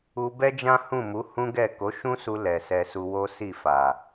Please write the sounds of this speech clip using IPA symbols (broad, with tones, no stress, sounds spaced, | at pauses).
u˧ b ɛ˦ d͡ʒ ã˦ h ũ˦˨ m u˨˦ h ũ˦ ɡ ɛ˦˨ k o˨˦ ʃ ũ˦ s u˧ l ɛ˨ s ɛ˧ s u˧ w o˦ s i˦˨ f a˨